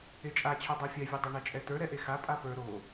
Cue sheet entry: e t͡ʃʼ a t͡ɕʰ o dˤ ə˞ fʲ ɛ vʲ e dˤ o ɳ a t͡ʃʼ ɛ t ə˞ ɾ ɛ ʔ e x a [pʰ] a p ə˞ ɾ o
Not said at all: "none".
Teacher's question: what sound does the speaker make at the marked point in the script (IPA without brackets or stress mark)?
pʼ